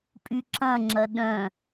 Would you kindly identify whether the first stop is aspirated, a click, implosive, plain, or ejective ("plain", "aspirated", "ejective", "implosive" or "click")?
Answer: ejective